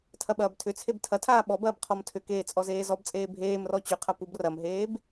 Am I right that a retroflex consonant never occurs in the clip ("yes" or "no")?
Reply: yes